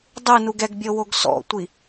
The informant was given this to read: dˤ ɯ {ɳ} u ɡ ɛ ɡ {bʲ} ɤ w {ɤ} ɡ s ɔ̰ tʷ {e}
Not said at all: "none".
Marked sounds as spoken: n, bʲ, o, i

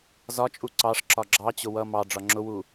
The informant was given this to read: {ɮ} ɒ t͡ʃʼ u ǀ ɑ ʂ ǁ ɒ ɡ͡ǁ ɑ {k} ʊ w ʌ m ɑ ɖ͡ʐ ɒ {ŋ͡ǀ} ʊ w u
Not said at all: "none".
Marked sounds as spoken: z, t͡ɕ, ŋ͡ǁ

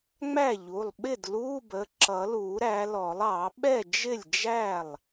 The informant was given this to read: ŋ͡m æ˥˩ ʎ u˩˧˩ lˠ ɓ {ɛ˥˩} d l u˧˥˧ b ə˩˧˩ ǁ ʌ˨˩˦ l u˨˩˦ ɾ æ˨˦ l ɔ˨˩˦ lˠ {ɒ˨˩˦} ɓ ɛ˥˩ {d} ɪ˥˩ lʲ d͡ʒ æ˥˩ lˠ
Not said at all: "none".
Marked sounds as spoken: ɪ˥˩, ɑ˨˩˦, d͡ʒ

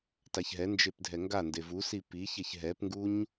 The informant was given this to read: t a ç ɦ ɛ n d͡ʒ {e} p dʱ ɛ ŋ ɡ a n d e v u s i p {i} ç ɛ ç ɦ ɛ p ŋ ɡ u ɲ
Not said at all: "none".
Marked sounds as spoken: e, i

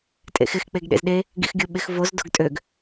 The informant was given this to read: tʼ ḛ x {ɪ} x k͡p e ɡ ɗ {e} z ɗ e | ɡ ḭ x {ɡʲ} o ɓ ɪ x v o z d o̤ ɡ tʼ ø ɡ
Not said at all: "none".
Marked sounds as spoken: ɪ, ḛ, ɡʲ

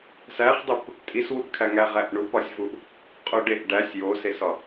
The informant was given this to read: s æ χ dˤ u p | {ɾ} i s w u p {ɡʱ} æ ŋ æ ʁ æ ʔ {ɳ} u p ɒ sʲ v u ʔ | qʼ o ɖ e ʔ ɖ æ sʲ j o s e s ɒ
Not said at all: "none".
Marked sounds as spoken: tʼ, kʰ, ɳ

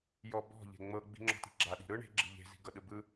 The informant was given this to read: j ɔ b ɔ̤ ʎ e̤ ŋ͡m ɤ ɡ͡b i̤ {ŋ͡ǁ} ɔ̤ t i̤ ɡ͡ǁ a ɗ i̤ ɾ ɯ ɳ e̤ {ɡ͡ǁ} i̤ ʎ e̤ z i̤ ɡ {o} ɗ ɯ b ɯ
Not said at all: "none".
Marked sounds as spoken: ŋ͡ǁ, ɡ͡ǁ, ɤ

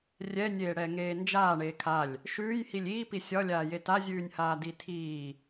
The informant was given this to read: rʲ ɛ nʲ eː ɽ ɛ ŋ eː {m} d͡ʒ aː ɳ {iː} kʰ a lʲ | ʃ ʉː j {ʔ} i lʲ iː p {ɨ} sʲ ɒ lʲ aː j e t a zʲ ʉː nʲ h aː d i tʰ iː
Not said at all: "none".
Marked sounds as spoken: n, eː, h, i

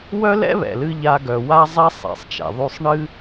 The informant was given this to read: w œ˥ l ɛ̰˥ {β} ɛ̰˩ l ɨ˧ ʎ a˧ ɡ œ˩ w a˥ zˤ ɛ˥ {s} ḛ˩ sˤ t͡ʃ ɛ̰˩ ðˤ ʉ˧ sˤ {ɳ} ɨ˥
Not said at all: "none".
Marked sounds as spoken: β, sˤ, ɳ

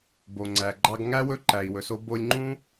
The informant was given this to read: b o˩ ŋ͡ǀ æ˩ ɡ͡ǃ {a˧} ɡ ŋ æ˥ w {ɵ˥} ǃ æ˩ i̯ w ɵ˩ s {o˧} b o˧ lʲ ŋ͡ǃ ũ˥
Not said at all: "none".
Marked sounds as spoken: ɑ˧, ɵ˥, o˧

